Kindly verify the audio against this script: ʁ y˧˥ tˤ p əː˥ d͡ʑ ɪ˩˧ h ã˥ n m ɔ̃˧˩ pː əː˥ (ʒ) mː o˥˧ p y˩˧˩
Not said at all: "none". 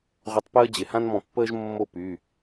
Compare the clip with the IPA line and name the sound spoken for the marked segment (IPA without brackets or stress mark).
ʒ